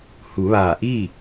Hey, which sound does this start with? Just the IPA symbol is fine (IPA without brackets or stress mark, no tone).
h